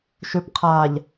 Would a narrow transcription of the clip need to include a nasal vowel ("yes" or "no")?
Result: no